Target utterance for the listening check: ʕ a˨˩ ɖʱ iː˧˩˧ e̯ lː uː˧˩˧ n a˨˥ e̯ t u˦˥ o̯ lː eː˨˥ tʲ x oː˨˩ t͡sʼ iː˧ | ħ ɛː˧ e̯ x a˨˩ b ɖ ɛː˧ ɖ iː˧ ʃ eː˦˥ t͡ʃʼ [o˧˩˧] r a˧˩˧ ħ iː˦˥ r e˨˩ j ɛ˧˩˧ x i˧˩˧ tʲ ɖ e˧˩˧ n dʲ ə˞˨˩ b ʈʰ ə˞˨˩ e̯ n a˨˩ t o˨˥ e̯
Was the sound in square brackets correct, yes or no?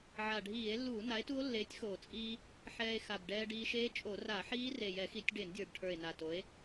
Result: yes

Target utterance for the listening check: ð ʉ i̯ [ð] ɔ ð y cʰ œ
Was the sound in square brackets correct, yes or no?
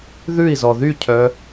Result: no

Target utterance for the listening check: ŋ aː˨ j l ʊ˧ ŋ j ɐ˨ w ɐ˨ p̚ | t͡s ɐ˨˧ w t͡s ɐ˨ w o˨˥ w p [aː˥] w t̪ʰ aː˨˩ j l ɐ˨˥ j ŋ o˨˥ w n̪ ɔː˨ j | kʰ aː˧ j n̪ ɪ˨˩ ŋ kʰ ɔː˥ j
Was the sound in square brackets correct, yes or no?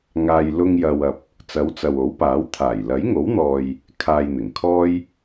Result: no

